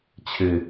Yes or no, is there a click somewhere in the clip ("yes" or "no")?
no